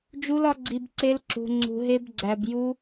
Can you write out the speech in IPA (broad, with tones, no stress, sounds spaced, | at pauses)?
d͡ʒ u˦˥ l ɒ˦˥ ɡ͡ǀ i˧ b ǀ e˦˥ l ǁ ṳ˧ ŋ͡ǀ ṳ˧ ɦ e˦˥ b ɡ͡ǀ æ˧ b j u˦˥